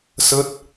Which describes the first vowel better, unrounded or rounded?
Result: unrounded